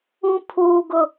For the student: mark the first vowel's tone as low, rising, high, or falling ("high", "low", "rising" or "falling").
high